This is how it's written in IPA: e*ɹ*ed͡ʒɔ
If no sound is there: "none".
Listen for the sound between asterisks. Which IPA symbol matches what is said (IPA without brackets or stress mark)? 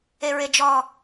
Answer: ɹ